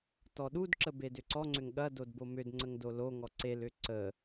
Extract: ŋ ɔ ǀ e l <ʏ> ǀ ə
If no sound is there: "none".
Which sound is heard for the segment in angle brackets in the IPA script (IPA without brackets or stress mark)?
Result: ʏ